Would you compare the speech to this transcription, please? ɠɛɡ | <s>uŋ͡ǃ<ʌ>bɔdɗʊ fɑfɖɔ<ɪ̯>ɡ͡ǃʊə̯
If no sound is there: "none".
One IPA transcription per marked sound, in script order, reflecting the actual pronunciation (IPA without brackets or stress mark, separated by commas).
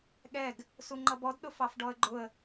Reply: s, ʌ, ə̯